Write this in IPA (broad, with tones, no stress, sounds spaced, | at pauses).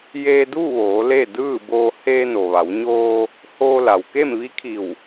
j eː˧ d uː˥˨ ʋ oː˩˧ l e˥˨ d ɯː˥˨ b oː˧ h e˧ n o˩ ʋ a˩˧ w ɲ oː˧ | h oː˧ l a˩ w k e˥˨ m ʋ i˧˥ kʰ i˧˩ w